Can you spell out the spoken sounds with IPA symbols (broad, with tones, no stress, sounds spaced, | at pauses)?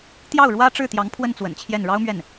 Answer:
t̪ j ɑ˥˩ ʊ̯ ɻ w ä˥ ʈ͡ʂ ɻ̩˥˩ t̪ j ɑ˧˥ ŋ pʰ w ə˥˩ n t͡s w ə̰˨˩ n t͡ɕʰ j ɛ˥˩ n ɻ ɑ˥ ʊ̯ m ɥ ɛ˥˩ n